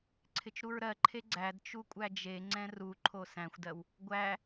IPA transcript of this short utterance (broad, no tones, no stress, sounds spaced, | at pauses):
ǀʰ ɪ t͡ʃ ɾ u ɹ ɾ ɜ ǃʰ e ɡ͡ǀ æ d t͡ʃ u kʷʼ æ d͡ʒ e ŋ͡ǀ ɛ̃ r u ǃʰ o s æ̃ xʷ d ɜ w | ɡʷ æ